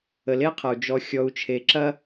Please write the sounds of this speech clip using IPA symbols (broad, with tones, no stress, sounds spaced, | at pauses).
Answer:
ə˨ l e˦ qʰ ɐ˨ u̯ d͡ʒ ɔ˨ xʲ ɔ˨ u̯ t͡ʃʰ e˨ ǁ ɐ˦